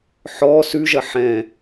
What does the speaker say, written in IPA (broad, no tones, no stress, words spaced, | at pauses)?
ħɔ sʉʒɐ ħɛ̃